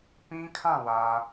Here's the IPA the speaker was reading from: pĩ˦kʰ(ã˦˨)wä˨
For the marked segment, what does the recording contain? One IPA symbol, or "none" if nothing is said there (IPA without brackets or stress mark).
ã˦˨